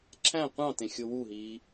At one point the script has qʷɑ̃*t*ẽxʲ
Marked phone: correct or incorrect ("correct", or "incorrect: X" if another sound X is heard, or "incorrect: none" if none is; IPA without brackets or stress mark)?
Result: correct